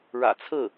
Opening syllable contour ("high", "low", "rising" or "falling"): low